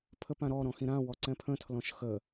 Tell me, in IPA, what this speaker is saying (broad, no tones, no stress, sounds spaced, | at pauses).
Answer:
pʰ ə p ã ɾ ɔ ɾ ɔ̃ x ĩ ɾ ã w ɔ ǀ ɛ̃ pʰ ə̃ tʰ l ɔ̃ ʃ x ə